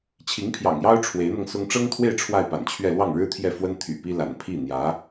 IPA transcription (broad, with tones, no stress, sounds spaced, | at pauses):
t͡ɕʰ i˧˥ ŋ pʰ j ɑ̰˨˩ ŋ j ɑ˥ ʊ̯ ʈ͡ʂʰ w e˧˥ ɪ̯ n̪ ɤ˧ ŋ s ʊ˥ ŋ ʈ͡ʂ ɤ˥ ŋ t̪ʰ w e˥˧ ɪ̯ ʈ͡ʂʰ w a˥˩ ɪ̯ p a̰˨˩ n t͡ɕʰ ɥ ɛ˥˧ l w ɑ˥˩ ŋ ɻ ɻ̩˥ t̪ʰ j ɛ˥˩ f w ə˥ n t̪ʰ y̰˨˩ p i˥ l a̰˨˩ n pʰ i˥˩ n̪ j ä˧˥